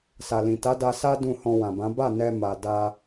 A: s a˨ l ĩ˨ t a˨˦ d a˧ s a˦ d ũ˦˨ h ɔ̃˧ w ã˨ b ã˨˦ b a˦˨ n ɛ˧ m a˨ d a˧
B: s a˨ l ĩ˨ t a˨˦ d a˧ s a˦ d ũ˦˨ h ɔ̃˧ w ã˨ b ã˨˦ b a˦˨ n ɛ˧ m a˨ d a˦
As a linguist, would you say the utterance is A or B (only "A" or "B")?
A